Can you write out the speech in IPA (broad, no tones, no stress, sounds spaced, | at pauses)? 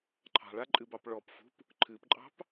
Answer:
ǃʰ ɑ̤ ɭ a ǃʼ ɨ b ɑ p ɭ ɔ p f ṳ p | ǃʰ ɨ p ǃʼ ɑ̤ p